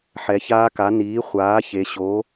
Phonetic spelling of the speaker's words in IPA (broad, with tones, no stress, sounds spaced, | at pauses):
ħ ɛ˩˧ ç aː˧˥ k a˩˥ n iː˩˥ χʷ aː˩˥ ç e˩˧ ɕ oː˩˥